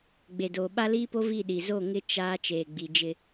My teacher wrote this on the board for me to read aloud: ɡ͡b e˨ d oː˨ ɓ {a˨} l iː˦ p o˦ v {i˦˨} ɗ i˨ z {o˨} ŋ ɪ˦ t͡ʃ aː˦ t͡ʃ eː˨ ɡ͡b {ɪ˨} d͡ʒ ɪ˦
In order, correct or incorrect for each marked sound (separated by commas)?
incorrect, correct, incorrect, incorrect